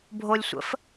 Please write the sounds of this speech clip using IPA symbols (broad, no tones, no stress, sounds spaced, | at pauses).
bʱ o lʲ sʷ ə̰ f